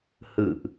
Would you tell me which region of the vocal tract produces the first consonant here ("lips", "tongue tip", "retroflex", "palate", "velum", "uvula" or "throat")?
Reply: throat